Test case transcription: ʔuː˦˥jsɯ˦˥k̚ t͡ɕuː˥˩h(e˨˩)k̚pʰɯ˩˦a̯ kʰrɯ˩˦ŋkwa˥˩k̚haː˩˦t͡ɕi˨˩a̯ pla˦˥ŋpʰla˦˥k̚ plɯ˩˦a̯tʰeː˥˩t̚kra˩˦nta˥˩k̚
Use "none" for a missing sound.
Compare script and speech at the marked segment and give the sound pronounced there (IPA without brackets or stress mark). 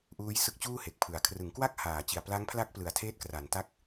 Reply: e˨˩